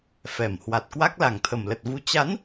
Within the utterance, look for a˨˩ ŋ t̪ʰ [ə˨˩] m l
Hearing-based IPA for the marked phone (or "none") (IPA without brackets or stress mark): ə˨˩